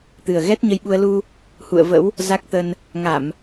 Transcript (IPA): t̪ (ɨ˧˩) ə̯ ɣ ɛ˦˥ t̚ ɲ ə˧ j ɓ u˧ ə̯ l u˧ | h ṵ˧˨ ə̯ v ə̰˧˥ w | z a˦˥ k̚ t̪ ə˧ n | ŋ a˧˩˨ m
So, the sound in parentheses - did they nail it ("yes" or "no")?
no